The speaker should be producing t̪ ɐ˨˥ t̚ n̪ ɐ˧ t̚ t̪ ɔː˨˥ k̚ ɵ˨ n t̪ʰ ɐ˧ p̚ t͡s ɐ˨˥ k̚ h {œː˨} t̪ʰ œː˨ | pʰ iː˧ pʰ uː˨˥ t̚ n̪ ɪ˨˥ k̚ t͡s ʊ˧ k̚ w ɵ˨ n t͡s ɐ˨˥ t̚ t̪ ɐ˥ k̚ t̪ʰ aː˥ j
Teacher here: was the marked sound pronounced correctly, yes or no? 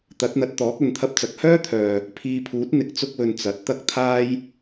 no